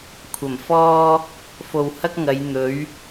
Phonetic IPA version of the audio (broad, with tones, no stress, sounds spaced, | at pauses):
kʷʰ ɐ˨˩ m f ɔː˥ | f o˨ w h ɐ˥ k̚ ŋ ɐ˨˧ j n̪ ɵ˨˥ ɥ